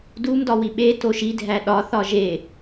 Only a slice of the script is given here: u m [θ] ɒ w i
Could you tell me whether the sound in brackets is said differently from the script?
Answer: yes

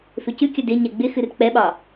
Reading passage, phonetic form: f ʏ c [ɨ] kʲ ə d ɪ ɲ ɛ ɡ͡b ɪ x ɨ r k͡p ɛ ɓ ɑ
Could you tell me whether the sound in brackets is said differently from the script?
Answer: no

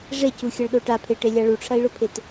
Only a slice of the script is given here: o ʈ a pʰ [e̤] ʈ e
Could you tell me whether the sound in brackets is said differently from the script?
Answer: yes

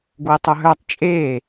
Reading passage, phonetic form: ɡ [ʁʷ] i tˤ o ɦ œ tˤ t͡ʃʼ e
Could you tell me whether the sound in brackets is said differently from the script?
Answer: yes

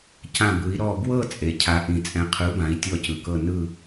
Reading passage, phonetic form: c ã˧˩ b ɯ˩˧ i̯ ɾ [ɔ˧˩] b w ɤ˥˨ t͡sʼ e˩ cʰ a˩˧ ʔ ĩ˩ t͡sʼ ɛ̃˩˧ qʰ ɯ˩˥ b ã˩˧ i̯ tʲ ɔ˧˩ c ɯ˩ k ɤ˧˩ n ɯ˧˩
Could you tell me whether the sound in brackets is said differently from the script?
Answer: no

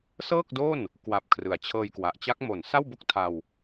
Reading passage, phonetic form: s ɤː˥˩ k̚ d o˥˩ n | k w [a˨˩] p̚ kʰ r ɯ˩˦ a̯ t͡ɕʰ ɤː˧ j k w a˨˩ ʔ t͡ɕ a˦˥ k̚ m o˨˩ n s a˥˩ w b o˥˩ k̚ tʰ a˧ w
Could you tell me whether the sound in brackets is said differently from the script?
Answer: no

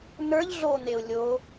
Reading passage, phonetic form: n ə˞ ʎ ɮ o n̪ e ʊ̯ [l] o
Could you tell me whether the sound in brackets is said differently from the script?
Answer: yes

